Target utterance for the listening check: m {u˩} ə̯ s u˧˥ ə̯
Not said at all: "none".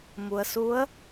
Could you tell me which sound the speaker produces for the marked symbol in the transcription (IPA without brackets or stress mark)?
u˩